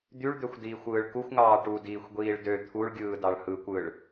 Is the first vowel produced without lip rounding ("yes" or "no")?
no